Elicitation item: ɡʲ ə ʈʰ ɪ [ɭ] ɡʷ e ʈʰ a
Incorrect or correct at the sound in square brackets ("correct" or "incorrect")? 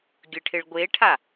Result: correct